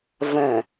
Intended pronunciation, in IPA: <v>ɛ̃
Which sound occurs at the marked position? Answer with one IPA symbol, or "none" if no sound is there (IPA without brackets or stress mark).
v